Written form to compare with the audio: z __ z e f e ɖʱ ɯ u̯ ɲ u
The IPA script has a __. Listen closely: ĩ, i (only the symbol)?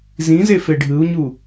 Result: ĩ